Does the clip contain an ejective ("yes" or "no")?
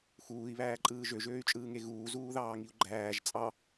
yes